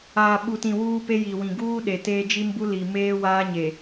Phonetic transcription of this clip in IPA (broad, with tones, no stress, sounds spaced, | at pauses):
aː˨ ɓ u˨ t ĩ˨ w uː˦ p e˦ j i˨ w ĩ˨ ɡ uː˦ ɗ e˨ t eː˦ d͡ʒ i˦ m b u˦ l i˨ m eː˦ w aː˦ ɲ e˨